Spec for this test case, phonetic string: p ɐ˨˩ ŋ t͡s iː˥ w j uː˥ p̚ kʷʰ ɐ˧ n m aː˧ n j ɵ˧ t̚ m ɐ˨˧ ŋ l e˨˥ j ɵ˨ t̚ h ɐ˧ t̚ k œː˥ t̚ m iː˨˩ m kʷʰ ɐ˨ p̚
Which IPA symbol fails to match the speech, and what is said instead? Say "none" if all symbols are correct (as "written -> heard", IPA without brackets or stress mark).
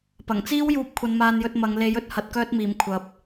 none